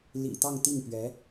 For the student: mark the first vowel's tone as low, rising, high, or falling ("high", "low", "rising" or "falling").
low